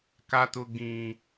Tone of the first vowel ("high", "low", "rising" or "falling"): high